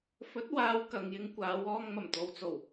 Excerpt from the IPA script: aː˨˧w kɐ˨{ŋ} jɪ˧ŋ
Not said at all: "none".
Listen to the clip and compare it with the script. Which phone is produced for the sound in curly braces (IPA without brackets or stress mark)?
ŋ